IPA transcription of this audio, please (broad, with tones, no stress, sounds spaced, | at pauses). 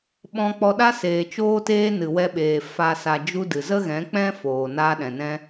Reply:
ɓ ɔ̃˧ k͡p ɔ˧ ɗ a˦ s eː˨ t͡ʃ oː˧ t eː˧ n ɨ˨ w ɛ˧ ɓ eː˨ f a˨ s a˨ d͡ʒ u˧ d ɨ˨ z ə˦ ɣ ɛ̃˨˦ k͡p ɛ̃˦ f oː˨ n aː˧ ɗ ɛ̃˨ n ɛ̃˧